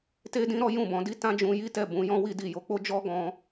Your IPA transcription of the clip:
te˦dĩ˦ ɾɔ˦jũ˦˨bɔ̃˨˦di˦ tã˦d͡ʒũ˧ji˦tɛ˦˨ bũ˨˦jɔ̃˦wi˦di˦˨ jo˨˦k͡po˦ d͡ʒɔ˦ ɡɔ̃˧

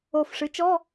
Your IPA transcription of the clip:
o˨˩fʂɨ˩˥t͡ʃɔ˧˥˧

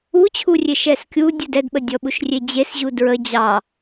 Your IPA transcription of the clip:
ut͡ɕʰurʲe ʃɛskʲu dʲudɛdɓə dʲɔɓuʃrʲed͡ʑes ʑudɹə d͡ʑɑ

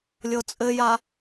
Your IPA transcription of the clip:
lʲɤt͡sʼɘja

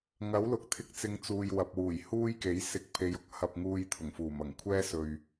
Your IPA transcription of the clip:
ŋɐ˨˥wlʊ˨k̚t̪ʰɪ˧k̚ t͡sɪ˧ŋt͡suː˨jwɐ˨p̚wuː˨˩j huː˥jke˨˥j sɪ˨˥k̚pʰe˨˧jʊ˧k̚ hɐ˧p̚ŋuː˧j t̪ʰʊ˨˩ŋfuː˨˩mɐ˨˩ŋ kʷʰɛː˥sɵ˨ɥ

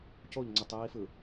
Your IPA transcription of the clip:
coʎŋ͡ǀetˤiːfɯ

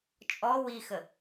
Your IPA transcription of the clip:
t͡ʃʼɔ wixə

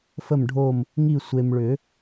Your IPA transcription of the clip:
fə˦˨mɖʱo˦˨m | ŋi˦˨ sʷe˨mɭʏ˨˩˦

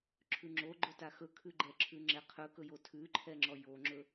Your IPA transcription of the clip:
ǁʰʉŋ͡ǁoɡ͡ǃɵta xɵkʰʉɡ͡ǃɛǁʰʉ ŋ͡ǁɛqʰɵkɵjo tʰʉǃʰɛŋ͡ǁɔ joŋ͡ǁɵ

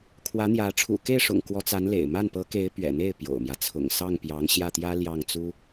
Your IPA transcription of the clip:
kʰwä˧˥n̪jä˧˥ ʈ͡ʂʰṵ˨˩ke˥˩ɪ̯ʂʊ̰˨˩ŋ kwɔ˧˥t͡sa˧˥nlḛ˨˩ɪ̯ ma˥˩npɤ˧˥ ke˧˥ɪ̯ pɥɛ̰˨˩n̪e˥˩ɪ̯ pjo̰˨˩ʊ̯mjä˦ t͡sʰʊ̰˨˩ŋsɑ˥˩ŋpjɑ˧˥ŋ ɕjä˥˩t̪jä˥ ljɑ˥˩ŋt͡su˥

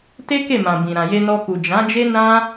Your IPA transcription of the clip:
te˦ke˦˨mã˨ bĩ˨ ɾã˨je˧nɔ˧ku˨ d͡ʒã˨˦ d͡ʒe˦ nã˦

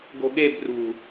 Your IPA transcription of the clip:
ɡo̤ɠeb rṳ

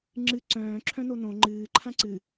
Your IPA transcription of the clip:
ŋ͡ǁɨ ǀœ̃ː ǁʰœ̃nonõ ŋ͡ǃɨː ǃʰãǀɨ

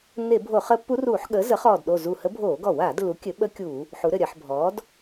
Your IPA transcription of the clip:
nːe˧˩˧bʱo˧˩˧χəː˧˥pːu˧˥r uː˧˩˧ħɠəː˩˥ zə˩˥χɔː˧˩dɗo˧˩ zu˧˩hə˧˥ bʱoː˧˩˧ɡɔ˧˩˧waː˧˩˧dlːu˩˥ kʲɘ˩˥ɓə˧˥ kʲu˧˩˧ | ħu˩˥ɾɘ˧˩ɾʲɜ˧˩˧ħ bʱɔː˩˥d

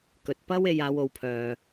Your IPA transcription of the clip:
kɵ˨t̚pɐ˥w e˧j aː˨˧wo˨˧wpʰœː˨

